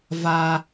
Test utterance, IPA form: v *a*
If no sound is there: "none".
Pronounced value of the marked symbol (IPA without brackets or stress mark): a